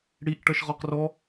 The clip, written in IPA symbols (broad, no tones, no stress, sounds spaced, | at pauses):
ɽ i ʔ ʈ ʌ ʃ ʁ ɔ q r ɔ